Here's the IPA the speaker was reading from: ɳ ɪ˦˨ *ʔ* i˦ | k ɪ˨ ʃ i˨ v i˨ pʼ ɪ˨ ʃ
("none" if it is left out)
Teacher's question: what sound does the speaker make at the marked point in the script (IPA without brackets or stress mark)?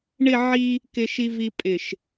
ʕ